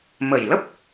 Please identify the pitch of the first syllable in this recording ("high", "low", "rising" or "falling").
low